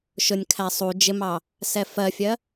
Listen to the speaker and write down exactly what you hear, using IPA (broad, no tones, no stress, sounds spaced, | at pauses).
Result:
ʃ ʊ nʲ kʰ æ sˤ u d͡ʒ ɪ m ɑ | s ɛ f ɜ fʲ ɜ